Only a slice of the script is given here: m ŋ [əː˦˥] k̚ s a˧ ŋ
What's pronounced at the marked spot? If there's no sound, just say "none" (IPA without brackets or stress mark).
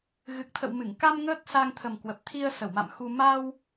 əː˦˥